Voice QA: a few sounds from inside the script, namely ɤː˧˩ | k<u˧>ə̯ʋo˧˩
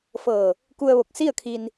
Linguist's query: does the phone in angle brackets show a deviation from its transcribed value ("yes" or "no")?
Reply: no